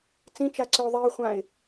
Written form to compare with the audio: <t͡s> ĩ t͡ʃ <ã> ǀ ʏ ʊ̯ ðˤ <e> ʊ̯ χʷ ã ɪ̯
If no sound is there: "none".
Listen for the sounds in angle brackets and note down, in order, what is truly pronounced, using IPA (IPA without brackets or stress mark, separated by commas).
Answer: t͡s, a, i